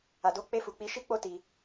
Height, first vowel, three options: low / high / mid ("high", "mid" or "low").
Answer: low